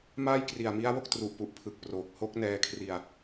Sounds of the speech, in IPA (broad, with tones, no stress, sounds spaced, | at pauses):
m aː˥˩ j k r i˨˩ a̯ m i˦˥ a̯ w o˥˩ k̚ t r u˨˩ ʔ p u˨˩ ʔ pʰ ɯ˨˩ k̚ p r oː˨˩ k̚ h o˦˥ k̚ n ɛː˧ kʰ r i˧ a̯